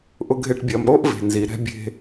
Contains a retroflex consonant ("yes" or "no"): yes